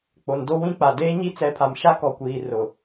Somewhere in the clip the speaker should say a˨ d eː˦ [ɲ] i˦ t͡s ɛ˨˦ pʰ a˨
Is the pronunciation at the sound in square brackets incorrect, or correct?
correct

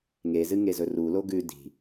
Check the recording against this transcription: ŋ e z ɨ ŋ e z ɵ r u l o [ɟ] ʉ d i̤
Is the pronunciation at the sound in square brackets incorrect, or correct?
incorrect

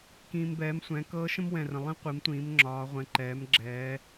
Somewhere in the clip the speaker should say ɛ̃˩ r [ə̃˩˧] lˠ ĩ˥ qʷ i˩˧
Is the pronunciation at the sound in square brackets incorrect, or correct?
incorrect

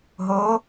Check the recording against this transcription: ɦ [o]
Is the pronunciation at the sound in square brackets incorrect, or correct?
correct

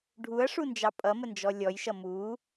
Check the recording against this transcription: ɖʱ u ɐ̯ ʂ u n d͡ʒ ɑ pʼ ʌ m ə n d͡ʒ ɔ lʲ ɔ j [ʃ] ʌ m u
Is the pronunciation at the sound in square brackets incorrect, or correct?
correct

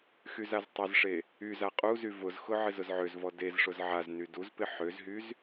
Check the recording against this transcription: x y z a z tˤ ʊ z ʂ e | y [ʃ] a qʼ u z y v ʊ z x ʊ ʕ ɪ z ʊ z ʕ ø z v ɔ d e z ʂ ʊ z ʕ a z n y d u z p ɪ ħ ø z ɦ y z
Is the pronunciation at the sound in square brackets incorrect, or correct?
incorrect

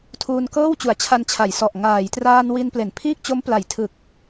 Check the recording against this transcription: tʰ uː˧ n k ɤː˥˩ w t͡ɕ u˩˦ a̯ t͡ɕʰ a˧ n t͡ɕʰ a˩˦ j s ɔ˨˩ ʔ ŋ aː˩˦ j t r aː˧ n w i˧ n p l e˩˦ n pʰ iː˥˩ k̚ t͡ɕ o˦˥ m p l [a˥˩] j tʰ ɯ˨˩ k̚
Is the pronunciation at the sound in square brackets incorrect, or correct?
incorrect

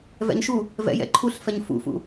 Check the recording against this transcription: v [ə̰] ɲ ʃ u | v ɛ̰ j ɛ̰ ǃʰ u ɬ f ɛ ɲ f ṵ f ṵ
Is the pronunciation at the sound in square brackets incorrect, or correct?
incorrect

